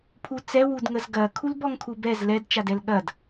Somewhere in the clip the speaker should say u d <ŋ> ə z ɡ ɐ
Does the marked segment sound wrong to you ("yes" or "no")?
no